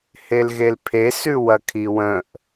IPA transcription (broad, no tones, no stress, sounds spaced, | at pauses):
h e l ɣ e l pʰ e s ʉ w ɐ kʰ i w ə̃ ʔ